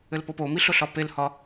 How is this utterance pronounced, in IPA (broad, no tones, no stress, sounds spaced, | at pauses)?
ɘ l p o p o m i ɬ ʊ ɬ ɒ p e l h ɒ